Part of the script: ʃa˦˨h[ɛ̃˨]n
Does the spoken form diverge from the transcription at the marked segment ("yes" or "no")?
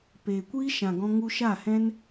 yes